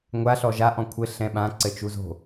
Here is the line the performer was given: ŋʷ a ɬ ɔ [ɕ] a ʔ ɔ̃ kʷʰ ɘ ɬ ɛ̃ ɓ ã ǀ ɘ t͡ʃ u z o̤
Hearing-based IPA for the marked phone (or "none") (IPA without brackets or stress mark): ʒ